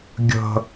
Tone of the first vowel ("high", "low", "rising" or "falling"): high